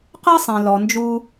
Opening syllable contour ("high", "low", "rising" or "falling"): high